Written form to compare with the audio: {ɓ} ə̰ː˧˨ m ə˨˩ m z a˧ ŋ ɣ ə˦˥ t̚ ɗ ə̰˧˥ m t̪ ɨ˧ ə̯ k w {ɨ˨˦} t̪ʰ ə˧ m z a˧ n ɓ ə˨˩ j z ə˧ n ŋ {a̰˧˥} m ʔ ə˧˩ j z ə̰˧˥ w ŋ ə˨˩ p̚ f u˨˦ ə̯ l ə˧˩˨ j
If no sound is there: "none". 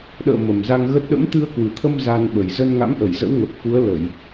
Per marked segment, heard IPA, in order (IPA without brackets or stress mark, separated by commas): ɗ, ɨ˨˩, a̰˧˥